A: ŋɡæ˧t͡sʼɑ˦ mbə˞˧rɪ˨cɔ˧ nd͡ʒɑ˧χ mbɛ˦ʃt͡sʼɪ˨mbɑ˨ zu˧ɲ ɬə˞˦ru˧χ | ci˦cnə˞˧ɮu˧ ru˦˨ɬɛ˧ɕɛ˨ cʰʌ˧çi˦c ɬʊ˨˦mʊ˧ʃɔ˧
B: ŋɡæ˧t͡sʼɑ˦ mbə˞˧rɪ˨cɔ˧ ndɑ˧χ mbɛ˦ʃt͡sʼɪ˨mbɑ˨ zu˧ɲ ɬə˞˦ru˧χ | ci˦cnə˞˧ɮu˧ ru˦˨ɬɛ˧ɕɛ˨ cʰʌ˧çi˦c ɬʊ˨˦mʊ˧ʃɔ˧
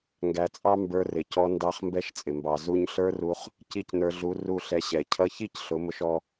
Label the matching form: B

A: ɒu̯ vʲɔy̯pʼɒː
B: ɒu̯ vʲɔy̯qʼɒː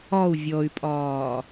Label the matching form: A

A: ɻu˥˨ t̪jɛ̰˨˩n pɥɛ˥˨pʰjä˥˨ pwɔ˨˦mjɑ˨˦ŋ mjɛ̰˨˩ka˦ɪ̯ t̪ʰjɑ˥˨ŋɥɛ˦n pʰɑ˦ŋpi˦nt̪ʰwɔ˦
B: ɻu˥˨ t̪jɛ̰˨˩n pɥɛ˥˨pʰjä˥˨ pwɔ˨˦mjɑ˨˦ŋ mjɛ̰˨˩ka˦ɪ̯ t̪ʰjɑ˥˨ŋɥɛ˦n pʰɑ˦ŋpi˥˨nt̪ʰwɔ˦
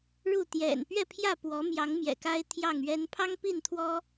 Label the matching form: B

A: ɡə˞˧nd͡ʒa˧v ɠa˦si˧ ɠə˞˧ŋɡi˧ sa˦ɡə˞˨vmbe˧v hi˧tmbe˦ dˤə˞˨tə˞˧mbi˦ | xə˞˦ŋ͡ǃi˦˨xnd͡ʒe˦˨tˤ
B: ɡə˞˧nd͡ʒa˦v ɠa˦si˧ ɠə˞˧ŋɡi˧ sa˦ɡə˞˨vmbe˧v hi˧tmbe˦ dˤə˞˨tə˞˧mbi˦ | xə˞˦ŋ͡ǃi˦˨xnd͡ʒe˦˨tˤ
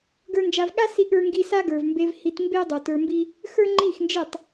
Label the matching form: A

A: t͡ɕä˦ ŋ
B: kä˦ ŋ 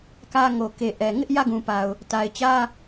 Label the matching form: B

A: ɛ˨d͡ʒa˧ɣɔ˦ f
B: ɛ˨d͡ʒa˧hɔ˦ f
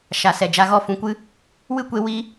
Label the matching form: A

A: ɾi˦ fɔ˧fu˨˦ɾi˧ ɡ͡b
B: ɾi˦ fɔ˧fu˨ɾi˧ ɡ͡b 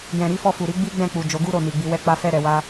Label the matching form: B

